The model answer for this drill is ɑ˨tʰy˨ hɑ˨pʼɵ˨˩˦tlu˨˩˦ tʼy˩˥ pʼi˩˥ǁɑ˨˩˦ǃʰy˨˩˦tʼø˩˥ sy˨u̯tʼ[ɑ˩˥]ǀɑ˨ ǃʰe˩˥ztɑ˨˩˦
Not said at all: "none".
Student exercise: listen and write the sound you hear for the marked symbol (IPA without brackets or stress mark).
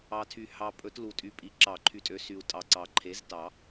ɑ˨